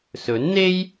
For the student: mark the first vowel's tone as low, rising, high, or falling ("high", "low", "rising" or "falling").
rising